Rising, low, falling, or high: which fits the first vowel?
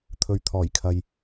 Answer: low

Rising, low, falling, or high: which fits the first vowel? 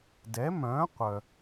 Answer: rising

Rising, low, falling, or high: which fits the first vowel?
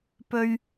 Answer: high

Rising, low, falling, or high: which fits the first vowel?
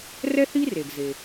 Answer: high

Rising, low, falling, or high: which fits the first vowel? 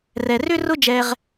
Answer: low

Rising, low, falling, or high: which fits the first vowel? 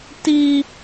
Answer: high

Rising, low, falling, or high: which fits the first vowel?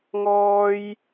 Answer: high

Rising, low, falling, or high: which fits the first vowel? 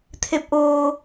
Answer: rising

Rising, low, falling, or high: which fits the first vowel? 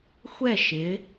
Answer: falling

